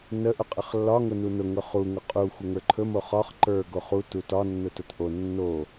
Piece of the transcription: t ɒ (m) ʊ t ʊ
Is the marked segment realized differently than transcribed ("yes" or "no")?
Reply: yes